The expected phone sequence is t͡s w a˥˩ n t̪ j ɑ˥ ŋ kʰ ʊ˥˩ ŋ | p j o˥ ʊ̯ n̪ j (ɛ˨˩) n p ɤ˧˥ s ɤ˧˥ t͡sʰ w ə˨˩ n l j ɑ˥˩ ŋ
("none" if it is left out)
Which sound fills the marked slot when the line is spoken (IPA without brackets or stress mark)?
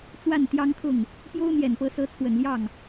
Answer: ɛ˨˩